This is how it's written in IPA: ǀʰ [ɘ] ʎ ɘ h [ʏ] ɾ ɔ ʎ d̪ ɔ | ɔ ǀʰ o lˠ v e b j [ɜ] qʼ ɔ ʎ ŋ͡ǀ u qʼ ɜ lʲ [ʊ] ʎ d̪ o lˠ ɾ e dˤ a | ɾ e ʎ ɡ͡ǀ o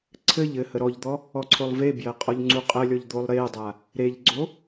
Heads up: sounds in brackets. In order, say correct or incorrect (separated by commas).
correct, incorrect, correct, incorrect